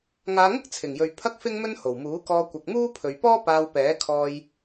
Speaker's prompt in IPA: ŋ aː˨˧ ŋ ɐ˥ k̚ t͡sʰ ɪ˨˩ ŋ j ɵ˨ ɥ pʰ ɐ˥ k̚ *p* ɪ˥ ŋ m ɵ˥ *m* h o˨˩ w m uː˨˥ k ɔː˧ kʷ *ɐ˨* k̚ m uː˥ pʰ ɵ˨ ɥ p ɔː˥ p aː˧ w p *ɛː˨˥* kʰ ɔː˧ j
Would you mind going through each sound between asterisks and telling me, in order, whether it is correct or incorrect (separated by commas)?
incorrect, incorrect, correct, correct